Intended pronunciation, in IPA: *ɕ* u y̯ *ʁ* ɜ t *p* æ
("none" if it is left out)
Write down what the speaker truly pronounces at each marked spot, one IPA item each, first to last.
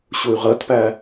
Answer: ɕ, ʁ, p

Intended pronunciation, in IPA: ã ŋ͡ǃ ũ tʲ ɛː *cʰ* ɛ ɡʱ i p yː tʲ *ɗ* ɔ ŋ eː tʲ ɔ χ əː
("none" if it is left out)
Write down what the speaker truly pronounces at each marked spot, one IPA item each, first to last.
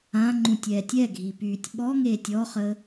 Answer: tʲ, ɓ

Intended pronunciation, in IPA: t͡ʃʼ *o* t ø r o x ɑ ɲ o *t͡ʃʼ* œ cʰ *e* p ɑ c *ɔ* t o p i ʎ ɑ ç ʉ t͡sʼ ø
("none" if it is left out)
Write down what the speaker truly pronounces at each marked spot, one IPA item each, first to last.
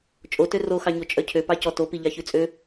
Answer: o, t͡ʃʼ, ø, ɔ

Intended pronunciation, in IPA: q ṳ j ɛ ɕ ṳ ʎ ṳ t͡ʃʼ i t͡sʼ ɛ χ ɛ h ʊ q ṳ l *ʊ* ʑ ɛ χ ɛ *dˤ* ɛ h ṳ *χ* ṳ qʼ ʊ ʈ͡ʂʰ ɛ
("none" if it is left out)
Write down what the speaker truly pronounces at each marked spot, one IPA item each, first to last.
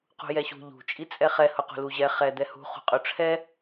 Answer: u, d̪, χ

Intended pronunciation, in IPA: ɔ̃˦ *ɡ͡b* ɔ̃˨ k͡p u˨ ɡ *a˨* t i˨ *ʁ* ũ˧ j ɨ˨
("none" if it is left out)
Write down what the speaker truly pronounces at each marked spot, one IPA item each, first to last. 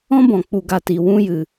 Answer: b, a˨, w

